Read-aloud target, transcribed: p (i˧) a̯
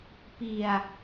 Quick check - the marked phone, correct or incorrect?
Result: correct